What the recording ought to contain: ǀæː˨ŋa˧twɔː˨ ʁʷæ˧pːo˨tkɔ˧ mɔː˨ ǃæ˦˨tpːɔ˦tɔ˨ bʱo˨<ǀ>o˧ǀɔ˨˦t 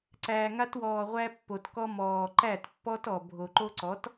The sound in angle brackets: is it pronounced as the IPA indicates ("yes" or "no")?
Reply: no